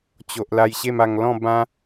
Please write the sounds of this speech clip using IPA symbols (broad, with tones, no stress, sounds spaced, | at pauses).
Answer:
t͡ɕ o˨ ʔ l a˧ j ɕ e˥˧ m a˧ ŋ l ɔ̃˥˧ b ã˦